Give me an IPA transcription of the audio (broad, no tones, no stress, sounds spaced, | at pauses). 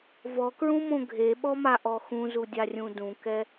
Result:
v ɔ k ɹ ũ m õ ɡʱ e ɓ ɔ m a ʔ ɔ x ũ z u dʲ a rʲ ũ d ũ k ɛ